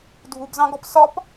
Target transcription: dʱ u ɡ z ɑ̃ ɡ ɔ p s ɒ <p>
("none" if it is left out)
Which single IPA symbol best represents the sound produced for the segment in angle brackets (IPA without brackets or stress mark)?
p